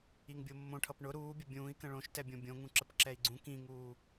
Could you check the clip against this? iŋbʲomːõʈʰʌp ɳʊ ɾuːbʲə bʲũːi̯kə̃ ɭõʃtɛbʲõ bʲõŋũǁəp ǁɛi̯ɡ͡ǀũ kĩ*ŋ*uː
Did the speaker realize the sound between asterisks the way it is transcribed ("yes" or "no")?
yes